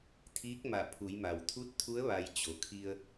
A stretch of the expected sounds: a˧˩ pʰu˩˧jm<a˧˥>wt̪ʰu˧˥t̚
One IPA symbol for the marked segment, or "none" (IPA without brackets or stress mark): a˩